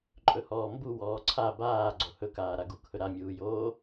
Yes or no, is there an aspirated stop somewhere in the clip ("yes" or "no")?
yes